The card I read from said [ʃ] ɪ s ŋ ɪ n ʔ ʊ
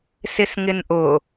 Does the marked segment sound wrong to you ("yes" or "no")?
yes